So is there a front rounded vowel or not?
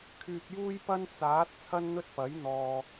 yes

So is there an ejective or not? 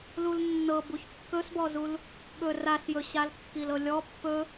no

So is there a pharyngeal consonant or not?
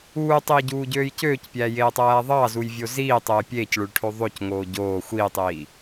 no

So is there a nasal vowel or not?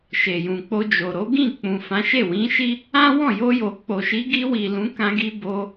yes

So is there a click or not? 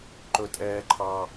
yes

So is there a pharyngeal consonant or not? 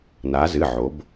yes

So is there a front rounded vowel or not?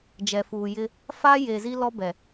no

